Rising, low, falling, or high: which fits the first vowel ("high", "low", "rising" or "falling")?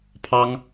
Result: high